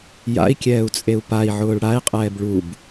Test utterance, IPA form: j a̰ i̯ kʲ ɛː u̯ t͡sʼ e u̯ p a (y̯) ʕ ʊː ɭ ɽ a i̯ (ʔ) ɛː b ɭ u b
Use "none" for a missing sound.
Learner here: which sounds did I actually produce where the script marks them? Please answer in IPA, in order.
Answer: i̯, qʼ

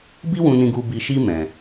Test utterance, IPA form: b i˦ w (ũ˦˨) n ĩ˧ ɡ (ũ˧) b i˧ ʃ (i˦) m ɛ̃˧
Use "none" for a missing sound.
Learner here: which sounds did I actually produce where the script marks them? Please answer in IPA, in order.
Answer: ũ˧, u˧, i˦

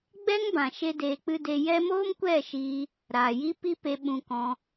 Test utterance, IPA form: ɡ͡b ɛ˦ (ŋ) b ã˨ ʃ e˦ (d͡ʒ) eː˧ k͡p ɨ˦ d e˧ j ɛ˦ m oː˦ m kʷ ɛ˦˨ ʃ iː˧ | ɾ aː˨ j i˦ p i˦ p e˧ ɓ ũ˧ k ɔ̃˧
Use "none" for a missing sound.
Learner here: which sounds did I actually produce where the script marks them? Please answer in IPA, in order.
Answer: ŋ, d

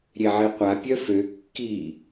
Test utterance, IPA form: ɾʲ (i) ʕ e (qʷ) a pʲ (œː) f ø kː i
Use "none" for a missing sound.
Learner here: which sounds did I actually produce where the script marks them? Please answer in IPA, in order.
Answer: e, qʷ, œ

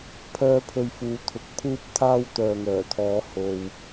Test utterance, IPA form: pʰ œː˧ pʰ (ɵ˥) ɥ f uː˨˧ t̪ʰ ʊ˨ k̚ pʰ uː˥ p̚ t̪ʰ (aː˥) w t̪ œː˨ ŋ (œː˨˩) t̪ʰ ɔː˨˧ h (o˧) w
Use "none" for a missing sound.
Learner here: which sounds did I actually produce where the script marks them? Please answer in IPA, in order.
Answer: ɵ˨, aː˥, œː˨˩, o˨

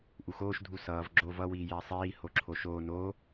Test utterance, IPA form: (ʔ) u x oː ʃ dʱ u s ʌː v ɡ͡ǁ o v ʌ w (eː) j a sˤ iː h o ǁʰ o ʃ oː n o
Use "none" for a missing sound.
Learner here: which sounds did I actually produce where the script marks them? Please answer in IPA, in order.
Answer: ʔ, iː

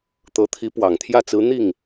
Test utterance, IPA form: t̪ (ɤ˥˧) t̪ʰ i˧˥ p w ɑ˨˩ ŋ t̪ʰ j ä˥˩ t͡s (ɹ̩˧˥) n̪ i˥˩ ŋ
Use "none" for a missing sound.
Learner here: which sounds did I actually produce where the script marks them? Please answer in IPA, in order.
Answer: ɤ˧˥, ɹ̩˧˥

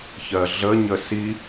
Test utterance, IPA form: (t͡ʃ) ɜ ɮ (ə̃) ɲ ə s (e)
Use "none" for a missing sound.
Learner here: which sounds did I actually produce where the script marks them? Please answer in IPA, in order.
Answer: ç, ə, i

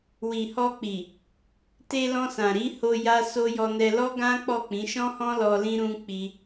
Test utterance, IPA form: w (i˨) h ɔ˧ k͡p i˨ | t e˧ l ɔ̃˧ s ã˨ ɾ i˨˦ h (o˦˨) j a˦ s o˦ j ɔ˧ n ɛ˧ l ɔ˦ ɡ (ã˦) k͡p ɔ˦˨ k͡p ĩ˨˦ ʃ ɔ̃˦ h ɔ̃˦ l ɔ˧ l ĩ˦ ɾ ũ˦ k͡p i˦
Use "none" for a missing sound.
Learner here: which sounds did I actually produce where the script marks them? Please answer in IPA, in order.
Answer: i˨, o˧, ã˦

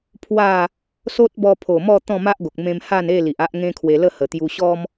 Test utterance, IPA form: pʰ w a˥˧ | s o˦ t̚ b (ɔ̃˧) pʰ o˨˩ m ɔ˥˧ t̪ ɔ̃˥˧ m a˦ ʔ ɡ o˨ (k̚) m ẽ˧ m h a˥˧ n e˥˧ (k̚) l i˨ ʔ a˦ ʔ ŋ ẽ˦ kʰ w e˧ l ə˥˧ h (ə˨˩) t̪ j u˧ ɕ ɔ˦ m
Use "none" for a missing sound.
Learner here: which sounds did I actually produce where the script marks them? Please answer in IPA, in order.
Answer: ɔ˧, k̚, none, ə˨˩

